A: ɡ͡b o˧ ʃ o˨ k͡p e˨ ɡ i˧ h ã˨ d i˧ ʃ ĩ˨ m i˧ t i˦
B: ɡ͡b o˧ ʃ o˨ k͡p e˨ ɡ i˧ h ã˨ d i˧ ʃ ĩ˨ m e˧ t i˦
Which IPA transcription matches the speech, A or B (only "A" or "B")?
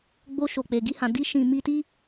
A